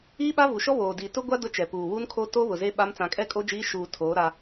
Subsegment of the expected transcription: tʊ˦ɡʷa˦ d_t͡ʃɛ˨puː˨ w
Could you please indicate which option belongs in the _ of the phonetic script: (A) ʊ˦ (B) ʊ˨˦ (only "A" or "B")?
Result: A